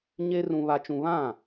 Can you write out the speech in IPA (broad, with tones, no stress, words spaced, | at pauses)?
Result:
ɲe˦ rũ˦βa˦t͡ʃũ˦ βã˦˨